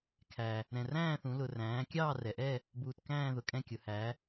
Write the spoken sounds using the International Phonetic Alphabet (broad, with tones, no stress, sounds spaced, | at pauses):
kʰ æ˩ | ɾ ɛ̃˩ r æ̃ː˦˨ θ ũ˩˧ l ʊ˩ r æ̃ː˩˧ kʲ ɑː˦˨ r ɛ˩ ʔ ɛ˦˨ | b uː˩ t k æ̃ː˦˨ ð ʊ˩ kʼ ɛ̃˦˨ kʲ ʊ˩˧ h æ˩˧